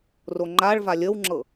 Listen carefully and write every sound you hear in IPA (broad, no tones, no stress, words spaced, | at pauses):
roŋ͡ǃaɭva lʲəwŋ͡ǁɤ